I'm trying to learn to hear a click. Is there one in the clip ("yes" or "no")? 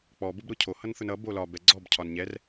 yes